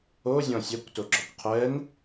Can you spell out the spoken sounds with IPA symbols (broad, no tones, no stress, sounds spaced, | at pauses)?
o zʲ ɔ̃ sʲ ɛ kʷ t o ɡ͡ǁ ɔ kʷ qʰ ɛ n